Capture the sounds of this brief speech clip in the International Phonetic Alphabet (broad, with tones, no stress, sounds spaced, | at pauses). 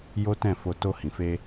j o˦ t ɛ̃˦˨ f o˧ t o˧ h ĩ˨ f e˧